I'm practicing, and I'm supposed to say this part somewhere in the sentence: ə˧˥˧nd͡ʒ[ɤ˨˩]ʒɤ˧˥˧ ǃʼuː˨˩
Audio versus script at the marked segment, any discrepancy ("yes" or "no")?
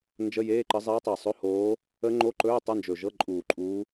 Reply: yes